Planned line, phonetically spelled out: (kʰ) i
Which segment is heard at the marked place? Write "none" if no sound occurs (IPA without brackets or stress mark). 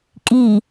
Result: kʼ